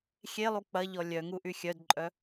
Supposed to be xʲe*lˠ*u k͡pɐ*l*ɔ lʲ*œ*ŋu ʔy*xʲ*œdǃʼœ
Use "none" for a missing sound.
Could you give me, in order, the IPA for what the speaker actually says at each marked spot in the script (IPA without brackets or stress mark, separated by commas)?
lˠ, ʎ, œ, xʲ